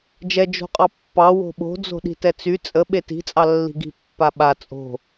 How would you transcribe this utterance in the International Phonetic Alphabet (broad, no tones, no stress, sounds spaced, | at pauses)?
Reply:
d͡ʒ ɛ d͡ʒ o̤ qʼ ɑ pː ɑ w o̤ ɓ o̤ d͡z o̤ ɗ i̤ t ɛ t͡s y t͡sʼ ə ɓ e t i̤ t͡sʼ ɑ lː i̤ ɡ i̤ pː a ɓ a t͡sʼ o̤